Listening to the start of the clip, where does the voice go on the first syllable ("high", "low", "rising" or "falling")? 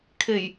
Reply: low